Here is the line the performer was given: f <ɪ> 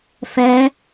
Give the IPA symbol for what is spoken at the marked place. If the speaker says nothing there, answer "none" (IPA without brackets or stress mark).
ɛ